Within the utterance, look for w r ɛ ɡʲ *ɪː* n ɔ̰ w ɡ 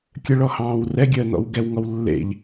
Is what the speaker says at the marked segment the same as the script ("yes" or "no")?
no